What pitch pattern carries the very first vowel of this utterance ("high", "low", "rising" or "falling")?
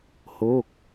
falling